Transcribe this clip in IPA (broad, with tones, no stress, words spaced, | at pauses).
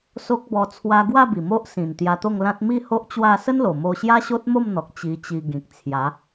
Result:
so˦k̚bɔ˧ t͡sʰwa˧ɡwa˥˧ bi˨˩mo˦ʔsĩ˨˩n t̪ja˧t̪o˥˧ŋlã˦t̚ mi˥˧ ho˦ʔt͡ɕwa˥˧ sə˦nlo˨˩mo˧ ɕja˦ɕo˦t̚mo˥˧mn̪ɔ˨k̚ t͡ɕi˧t͡ɕi˧ ɡĩ˨k̚t͡sʰja˨˦